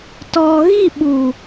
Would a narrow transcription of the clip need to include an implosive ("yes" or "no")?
yes